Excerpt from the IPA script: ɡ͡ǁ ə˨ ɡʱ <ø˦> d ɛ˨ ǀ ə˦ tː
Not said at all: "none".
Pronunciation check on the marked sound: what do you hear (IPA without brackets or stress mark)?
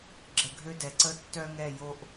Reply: ø˦